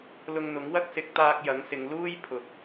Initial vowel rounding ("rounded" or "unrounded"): rounded